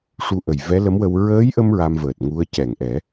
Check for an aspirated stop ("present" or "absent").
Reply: absent